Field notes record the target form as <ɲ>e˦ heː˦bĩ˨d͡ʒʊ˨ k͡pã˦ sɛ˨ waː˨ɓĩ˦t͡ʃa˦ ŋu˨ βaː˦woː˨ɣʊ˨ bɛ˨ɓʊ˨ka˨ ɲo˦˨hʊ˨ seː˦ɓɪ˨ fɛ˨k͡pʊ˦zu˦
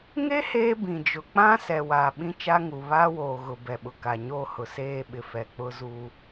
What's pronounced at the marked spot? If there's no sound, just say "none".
ŋ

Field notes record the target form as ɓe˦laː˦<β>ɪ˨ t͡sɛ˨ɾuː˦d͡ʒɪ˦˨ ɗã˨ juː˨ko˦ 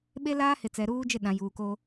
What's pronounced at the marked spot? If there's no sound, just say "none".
h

